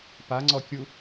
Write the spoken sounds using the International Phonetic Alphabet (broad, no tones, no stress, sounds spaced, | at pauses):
p a ŋ͡ǀ ɔ kʲ u